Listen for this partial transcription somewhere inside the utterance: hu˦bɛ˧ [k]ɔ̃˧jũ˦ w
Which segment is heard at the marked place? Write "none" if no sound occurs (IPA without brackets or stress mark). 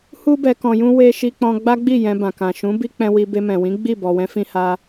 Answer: k